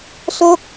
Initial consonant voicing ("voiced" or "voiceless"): voiceless